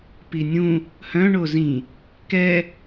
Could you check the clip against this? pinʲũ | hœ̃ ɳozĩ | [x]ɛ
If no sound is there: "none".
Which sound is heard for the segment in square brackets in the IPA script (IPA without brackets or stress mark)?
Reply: k